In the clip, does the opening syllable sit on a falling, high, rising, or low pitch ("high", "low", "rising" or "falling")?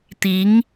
rising